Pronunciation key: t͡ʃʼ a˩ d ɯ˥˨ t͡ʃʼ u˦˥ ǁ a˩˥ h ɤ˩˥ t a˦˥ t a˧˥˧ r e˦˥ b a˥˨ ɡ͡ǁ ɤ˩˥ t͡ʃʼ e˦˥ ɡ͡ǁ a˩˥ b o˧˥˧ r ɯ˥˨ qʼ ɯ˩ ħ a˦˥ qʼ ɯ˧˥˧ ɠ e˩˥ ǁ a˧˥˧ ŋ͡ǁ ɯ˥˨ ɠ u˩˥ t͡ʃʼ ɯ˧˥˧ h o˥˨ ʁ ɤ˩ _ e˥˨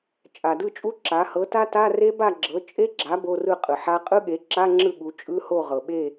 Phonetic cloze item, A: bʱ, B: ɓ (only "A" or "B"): B